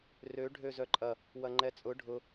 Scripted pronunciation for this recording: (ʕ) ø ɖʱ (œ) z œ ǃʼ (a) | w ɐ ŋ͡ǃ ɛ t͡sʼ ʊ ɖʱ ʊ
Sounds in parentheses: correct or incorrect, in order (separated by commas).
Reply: incorrect, incorrect, incorrect